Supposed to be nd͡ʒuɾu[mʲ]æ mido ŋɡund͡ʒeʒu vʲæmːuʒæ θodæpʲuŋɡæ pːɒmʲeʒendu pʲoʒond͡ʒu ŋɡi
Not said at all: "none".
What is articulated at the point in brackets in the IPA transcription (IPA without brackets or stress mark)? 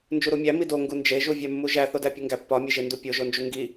mʲ